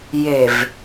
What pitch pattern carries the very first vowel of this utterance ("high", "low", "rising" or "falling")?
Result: low